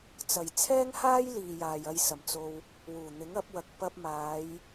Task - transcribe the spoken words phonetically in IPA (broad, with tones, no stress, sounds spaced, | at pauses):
t͡s ɐ˨˩ j t͡sʰ ɛː˥ ŋ h aː˥ j l iː˨ j aː˨ j ɐ˧ j s ɐ˨˩ m t͡s o˧ w | w uː˨˩ n̪ ɪ˨˥ ŋ ɐ˨˥ p̚ w ɐ˨˥ k̚ p ɐ˧ p̚ m aː˨˧ j